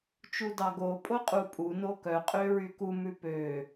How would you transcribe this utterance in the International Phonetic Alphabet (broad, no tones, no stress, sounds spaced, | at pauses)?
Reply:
t͡ʃ u d ɑ ɡ o pʼ o qʼ u pʼ u n o k œ qʼ ø ɹ y k u m ʉ p ø